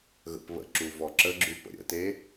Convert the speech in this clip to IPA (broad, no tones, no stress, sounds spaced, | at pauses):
ɣ ə̰ p β ə̰ ǁ u v ɔ ǁ ə ɡ͡ǁ ʉ p ə̰ ɾʲ ə̰ t e